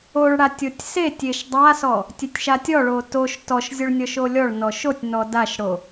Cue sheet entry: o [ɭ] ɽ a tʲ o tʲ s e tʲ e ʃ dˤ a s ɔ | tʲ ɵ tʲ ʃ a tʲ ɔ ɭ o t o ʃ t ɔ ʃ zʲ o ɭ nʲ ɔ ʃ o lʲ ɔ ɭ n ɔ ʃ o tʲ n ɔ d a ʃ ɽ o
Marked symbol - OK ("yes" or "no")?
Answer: yes